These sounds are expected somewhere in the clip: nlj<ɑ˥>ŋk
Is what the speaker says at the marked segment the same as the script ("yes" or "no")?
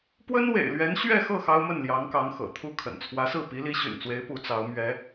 no